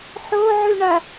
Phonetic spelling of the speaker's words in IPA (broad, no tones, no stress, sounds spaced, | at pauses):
ħ o ʕ ʉ ɳ ɐ